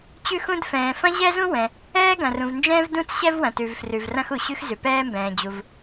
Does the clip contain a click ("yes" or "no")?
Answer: no